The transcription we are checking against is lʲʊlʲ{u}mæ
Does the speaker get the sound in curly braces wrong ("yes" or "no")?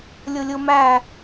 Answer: yes